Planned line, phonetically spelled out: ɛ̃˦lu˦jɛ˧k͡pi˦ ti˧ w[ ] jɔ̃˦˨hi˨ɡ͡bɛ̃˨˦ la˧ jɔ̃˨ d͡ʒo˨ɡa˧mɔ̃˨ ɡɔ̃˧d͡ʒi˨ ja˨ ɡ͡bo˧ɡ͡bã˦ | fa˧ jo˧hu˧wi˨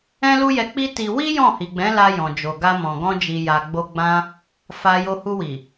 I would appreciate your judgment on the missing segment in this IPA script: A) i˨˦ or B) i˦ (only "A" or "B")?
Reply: B